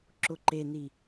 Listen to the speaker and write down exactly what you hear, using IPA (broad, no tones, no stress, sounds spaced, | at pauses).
ǁ ʊ ǃ e n i